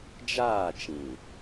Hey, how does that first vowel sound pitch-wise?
falling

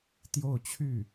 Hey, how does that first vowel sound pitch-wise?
falling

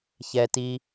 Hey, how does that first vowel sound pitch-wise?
low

